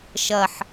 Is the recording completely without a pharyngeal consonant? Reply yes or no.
no